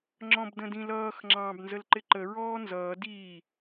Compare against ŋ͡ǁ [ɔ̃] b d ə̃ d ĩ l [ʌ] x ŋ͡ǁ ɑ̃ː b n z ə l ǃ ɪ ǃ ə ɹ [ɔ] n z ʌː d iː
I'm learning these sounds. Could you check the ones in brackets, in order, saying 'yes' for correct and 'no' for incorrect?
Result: yes, no, no

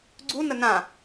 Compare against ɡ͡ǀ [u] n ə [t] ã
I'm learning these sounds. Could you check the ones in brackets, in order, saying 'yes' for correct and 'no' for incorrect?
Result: yes, no

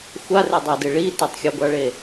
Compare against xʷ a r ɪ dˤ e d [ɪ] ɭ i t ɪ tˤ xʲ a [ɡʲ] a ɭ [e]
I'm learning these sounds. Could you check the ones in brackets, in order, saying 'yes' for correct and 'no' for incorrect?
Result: yes, no, yes

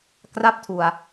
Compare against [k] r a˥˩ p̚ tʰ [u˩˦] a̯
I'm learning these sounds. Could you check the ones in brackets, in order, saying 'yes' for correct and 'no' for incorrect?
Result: yes, no

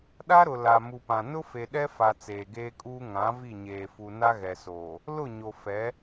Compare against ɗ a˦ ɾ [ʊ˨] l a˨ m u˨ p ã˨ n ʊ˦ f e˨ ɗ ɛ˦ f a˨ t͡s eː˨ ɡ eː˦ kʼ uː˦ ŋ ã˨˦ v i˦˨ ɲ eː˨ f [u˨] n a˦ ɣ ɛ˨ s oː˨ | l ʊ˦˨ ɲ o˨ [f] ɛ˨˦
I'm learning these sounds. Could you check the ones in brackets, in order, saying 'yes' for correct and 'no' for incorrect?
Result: yes, yes, yes

